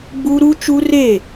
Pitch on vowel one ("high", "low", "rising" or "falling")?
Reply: high